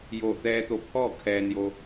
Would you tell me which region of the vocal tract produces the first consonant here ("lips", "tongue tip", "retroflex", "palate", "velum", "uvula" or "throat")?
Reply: palate